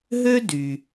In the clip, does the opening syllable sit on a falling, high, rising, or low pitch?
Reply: high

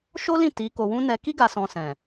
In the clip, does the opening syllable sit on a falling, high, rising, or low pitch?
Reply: high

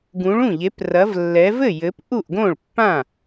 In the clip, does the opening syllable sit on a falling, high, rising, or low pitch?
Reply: rising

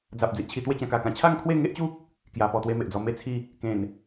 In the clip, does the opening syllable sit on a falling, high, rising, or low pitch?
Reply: low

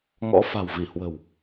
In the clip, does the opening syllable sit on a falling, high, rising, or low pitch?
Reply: rising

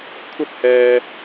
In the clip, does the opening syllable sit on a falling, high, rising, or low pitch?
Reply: high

